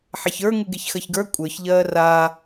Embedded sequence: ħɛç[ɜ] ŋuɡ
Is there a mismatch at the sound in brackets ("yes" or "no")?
yes